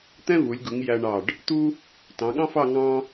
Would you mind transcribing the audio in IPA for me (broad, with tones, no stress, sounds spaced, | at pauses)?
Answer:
t̪ ɛ̃˥ v u˩˧ lʲ ɡ u˩˧ ŋ j æ˧ ɳ ɑ˧˩ ɖ | t̪ u˥ | t ɑ̃˩˧ ɠ ɑ̃˥ f ɑ˥˧ ŋ ɑ̃˥